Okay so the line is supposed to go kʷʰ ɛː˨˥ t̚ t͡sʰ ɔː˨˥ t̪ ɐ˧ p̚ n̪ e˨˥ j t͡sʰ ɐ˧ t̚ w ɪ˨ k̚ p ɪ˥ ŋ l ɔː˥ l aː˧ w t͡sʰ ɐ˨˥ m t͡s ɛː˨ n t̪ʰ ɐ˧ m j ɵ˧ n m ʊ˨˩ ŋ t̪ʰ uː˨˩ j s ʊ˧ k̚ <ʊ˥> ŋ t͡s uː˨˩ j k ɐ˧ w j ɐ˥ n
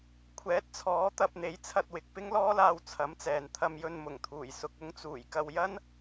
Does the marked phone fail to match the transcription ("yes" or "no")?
no